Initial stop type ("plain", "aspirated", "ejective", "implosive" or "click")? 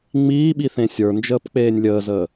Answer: implosive